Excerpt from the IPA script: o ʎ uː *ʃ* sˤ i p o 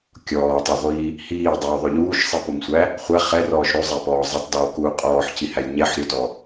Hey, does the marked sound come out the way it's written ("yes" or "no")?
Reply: yes